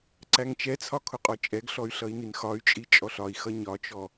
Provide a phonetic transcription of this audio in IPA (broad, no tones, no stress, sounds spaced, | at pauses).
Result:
ǀ æ ŋ t͡ʃ ɛ t͡sʰ ɒ kʰ ʊ qʼ ɔ t͡ʃʼ ɛ ɡ ɬ ɔ y̯ ɬ ʌ i̯ n i n x ɒ y̯ t͡ʃʼ i t͡ʃʼ ɔ ɬ ɒ i̯ x ʌ ɲ ɒ t͡ʃ ɔ